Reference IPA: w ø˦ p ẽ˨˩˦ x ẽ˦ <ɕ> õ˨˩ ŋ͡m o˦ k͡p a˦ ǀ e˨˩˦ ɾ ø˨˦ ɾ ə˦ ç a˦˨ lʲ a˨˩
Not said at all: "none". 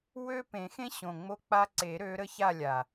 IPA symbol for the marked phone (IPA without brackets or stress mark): ɕ